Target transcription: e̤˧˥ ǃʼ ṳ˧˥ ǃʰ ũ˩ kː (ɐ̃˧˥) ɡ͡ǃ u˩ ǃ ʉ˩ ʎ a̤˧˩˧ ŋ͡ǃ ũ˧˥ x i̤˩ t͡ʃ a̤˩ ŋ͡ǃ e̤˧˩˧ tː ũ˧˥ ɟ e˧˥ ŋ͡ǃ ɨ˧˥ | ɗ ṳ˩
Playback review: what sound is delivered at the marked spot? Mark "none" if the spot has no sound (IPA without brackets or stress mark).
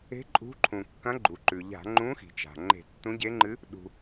ɐ̃˧˥